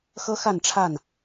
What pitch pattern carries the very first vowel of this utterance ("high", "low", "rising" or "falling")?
high